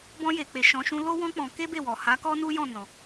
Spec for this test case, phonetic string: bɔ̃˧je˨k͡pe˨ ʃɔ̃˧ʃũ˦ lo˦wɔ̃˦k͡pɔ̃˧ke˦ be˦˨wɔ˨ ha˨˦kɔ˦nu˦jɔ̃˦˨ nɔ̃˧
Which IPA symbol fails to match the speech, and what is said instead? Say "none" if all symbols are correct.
none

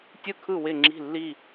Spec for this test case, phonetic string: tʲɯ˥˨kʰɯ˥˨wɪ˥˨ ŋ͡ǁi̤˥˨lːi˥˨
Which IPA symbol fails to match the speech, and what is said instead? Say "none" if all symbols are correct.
none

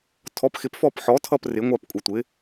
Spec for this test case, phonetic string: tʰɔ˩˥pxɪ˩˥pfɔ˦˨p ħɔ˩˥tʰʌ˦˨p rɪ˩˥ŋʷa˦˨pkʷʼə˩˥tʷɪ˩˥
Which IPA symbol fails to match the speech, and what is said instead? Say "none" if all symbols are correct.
none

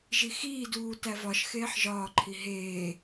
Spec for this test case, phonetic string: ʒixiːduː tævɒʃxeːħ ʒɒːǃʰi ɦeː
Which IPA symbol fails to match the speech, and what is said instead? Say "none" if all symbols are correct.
none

